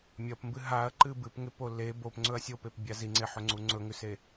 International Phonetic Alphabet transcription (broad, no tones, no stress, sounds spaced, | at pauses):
mʲ ɐ p m b ɨ ɦ a ɐ̯ ǃ ɨ b ɨ p ŋ e p o l e b o p ŋ͡ǀ ɵ ɐ̯ sʲ o p e p bʲ a z i ŋ͡ǀ e ħ ɵ ŋ͡ǀ u ŋ͡ǀ ɵ ŋ ʉ s e